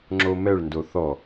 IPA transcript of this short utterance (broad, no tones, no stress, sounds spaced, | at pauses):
ŋ͡ǁ o m ɛ ɭ n d o θ ɔ